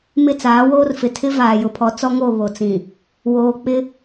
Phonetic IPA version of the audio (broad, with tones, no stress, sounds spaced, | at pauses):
m ɪ˦˨ t͡s aː˨˦ w oː˦ r f ɪ˨ tʰ ɪ˦ v aː˨ j ʊ˨ pʰ ɔ˨˦ t͡s ɔ˦ ŋ o˦˨ β o˨ t͡s ĩ˨ | w oː˨ k͡p ɪ˦